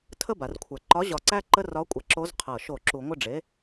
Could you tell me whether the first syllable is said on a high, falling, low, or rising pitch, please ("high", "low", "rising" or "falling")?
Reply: falling